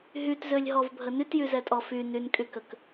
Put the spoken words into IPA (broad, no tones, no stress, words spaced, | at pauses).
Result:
ɦytzølʲɦɔvbʱə nytjyzɛtʼɔ fy nynkʼy kək